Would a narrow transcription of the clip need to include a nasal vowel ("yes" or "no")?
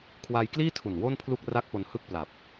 no